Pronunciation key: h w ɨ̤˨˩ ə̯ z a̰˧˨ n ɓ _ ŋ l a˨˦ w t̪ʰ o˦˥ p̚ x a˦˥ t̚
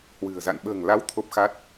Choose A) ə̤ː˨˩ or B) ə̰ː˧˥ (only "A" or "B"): A